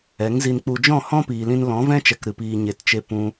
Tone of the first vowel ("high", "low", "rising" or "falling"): rising